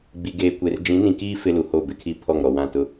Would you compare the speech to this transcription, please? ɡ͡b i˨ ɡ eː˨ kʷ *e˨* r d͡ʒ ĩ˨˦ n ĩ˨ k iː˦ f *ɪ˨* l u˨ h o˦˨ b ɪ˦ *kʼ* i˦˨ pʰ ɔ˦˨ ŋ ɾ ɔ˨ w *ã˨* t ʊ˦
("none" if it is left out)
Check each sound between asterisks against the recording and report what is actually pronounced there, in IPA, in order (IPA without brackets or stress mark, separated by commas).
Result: e˨, ɪ˦, kʰ, ã˦˨